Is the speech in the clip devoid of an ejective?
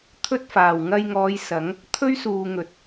yes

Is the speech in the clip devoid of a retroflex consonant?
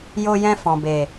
yes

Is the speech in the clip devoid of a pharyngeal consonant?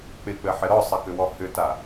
no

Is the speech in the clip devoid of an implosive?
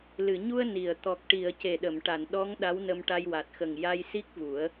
no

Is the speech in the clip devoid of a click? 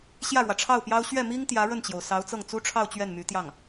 yes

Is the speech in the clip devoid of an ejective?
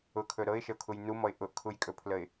no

